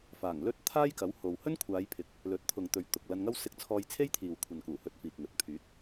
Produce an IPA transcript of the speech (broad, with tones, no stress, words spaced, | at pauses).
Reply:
faː˨˩ŋlɵ˥t̚ t̪ʰaː˥jkɐ˨˥who˨w hɵ˥nkʷʰaː˨˧jpʰɪ˨˥k̚ | lɵ˨˥t̚t̪ʰʊ˨ŋt̪ɵ˨ɥ t̪ʊ˨k̚lɐ˧n ŋɐ˥wsɪ˧k̚ t͡sʰɔː˧jt͡sʰe˥jt̪ʰiː˨w kʷʰɐ˨nkuː˨˩ hɵ˧t̚fiː˨k̚ŋɵ˨˥t̚ pʰyː˨˥t̚